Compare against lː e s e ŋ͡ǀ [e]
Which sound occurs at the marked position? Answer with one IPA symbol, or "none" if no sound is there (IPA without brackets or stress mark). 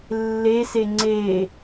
e